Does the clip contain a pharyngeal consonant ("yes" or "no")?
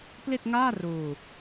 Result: no